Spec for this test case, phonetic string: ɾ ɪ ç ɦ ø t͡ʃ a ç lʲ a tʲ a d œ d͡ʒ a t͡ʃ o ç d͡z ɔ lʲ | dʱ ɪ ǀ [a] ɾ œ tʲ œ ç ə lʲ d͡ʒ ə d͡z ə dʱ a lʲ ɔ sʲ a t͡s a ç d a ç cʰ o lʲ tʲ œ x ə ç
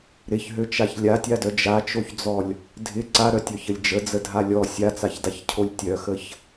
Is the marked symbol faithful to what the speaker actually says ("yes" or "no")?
yes